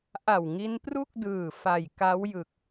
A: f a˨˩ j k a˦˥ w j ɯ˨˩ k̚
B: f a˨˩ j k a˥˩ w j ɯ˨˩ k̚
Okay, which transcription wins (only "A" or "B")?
A